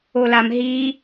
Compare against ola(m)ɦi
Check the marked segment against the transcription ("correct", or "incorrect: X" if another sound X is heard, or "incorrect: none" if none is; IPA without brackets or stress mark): correct